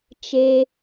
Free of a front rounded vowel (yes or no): yes